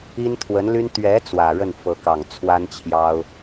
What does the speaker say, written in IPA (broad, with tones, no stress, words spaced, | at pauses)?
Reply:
i˥nt̪ʰwə˧˥nly˥n t̪ɥɛ˧˥ t͡swä˨˩ɻə˥˩n fɤ˧˥kɑ˨˩ŋt͡sʰwa˥nt͡ɕʰjɑ˥ʊ̯